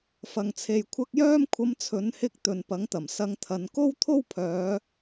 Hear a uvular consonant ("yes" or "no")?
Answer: no